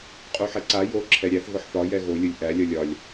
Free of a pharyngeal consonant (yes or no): no